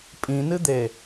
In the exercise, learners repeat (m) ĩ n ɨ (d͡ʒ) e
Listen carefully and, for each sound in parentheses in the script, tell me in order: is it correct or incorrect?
incorrect: pʼ, incorrect: d̪

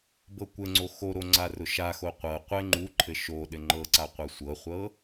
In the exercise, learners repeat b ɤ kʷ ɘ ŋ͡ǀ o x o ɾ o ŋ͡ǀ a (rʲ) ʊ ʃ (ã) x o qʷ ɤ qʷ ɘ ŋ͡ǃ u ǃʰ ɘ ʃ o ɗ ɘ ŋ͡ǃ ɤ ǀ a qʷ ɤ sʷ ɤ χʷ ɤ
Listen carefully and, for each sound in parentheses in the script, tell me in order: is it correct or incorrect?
incorrect: r, incorrect: a

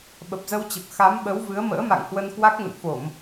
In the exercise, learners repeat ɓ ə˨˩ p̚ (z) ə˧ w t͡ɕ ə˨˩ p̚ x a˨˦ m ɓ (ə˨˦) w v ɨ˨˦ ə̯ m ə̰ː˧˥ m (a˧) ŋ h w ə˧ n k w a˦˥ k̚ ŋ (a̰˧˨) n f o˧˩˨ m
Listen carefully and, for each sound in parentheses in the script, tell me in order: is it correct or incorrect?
correct, correct, incorrect: a̰˧˨, incorrect: ə̰˧˨

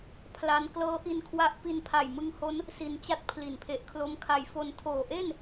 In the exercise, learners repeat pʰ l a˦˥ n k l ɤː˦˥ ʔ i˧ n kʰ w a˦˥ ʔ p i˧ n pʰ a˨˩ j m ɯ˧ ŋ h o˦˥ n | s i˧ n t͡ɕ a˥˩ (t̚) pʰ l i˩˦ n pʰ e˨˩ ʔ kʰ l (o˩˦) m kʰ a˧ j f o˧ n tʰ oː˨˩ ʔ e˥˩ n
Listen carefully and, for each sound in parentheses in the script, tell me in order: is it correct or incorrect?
correct, incorrect: o˦˥

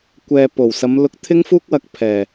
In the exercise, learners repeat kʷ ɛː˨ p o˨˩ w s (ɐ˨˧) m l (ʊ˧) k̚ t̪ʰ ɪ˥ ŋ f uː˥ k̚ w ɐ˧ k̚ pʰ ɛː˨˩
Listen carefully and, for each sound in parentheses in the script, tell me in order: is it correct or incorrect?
correct, correct

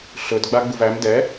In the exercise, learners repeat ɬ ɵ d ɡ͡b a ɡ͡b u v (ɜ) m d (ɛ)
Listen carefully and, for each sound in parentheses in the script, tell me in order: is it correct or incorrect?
incorrect: æ, correct

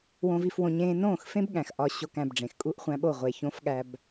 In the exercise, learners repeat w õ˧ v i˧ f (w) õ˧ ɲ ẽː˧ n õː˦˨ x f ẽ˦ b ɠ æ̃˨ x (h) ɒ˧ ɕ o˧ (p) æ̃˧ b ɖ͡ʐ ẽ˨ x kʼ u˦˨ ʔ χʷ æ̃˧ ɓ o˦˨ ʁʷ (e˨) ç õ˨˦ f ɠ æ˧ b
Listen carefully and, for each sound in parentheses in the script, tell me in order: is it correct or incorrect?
correct, incorrect: ʔ, incorrect: k, correct

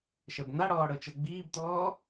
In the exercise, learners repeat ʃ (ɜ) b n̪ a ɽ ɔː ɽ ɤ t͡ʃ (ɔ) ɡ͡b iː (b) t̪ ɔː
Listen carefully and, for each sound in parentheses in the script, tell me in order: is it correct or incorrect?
correct, incorrect: ɤ, correct

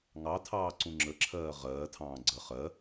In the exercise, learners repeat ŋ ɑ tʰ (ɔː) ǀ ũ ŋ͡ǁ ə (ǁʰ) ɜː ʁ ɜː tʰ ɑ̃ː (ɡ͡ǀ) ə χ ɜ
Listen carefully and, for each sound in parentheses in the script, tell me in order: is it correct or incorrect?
incorrect: ɑː, correct, correct

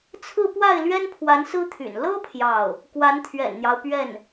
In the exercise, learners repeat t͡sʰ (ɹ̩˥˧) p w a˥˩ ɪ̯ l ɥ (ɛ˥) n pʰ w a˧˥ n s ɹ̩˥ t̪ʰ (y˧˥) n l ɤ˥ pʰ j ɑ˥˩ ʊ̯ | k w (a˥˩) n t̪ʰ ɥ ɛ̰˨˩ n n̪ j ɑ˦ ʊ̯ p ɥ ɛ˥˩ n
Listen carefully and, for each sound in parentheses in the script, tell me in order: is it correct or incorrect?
correct, correct, incorrect: y̰˨˩, incorrect: a˧˥

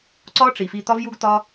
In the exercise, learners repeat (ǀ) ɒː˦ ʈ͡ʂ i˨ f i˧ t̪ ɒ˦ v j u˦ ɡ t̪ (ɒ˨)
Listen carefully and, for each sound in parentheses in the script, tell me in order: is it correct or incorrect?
correct, incorrect: ɒ˦

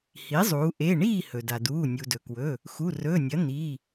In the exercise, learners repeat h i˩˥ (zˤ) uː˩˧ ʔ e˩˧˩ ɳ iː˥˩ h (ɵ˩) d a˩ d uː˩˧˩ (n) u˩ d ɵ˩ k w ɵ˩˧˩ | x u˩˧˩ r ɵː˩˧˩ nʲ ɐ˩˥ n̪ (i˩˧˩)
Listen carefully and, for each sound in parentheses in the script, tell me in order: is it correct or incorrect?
correct, correct, incorrect: nʲ, correct

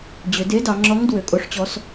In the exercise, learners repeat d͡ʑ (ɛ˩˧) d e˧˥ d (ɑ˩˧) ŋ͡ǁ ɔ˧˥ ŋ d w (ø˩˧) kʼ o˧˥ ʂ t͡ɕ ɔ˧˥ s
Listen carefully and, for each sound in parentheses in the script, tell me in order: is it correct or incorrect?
incorrect: ø˩˧, correct, correct

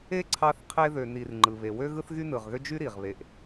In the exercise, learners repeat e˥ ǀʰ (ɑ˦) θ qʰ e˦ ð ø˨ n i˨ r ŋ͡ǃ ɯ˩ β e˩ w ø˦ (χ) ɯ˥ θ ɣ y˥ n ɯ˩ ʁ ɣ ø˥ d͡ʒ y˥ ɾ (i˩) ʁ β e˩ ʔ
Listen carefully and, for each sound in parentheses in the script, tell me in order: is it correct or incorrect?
correct, incorrect: ɣ, correct

